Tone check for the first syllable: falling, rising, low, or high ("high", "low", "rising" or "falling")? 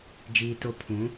low